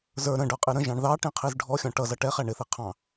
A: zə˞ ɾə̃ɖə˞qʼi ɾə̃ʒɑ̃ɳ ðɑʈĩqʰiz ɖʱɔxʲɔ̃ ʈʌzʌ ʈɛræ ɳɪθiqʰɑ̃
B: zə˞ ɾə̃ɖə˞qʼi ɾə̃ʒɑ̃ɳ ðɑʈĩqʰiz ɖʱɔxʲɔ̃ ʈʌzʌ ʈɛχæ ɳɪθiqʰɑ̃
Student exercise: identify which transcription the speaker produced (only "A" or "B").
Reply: B